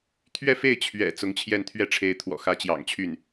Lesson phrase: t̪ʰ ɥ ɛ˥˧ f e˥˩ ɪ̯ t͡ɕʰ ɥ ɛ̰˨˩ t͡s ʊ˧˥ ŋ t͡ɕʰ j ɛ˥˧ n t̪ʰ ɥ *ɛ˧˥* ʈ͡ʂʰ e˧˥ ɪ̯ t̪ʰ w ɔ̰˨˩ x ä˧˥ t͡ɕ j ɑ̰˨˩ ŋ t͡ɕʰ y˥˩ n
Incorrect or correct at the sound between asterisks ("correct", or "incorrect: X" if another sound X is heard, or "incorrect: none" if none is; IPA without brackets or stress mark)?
incorrect: ɛ˥˩